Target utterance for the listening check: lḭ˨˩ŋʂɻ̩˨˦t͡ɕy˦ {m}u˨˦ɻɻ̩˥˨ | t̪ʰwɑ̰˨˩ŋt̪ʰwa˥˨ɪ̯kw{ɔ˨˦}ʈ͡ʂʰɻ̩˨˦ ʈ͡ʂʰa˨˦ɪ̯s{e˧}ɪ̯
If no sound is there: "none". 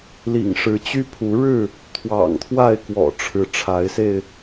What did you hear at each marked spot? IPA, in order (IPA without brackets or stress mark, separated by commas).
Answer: pʰ, ɔ̰˨˩, e˧